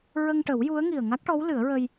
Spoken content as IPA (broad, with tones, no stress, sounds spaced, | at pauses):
ɹ ə˧ ŋ ʈ ə˨˩˦ w j u˧˥ ə̯ ŋ i˨˩ ə̯ ŋ a˦˥ k̚ ʈ ɔ˧˥ w l ɨ˨˩˦ ə̯ ɹ ə˧ j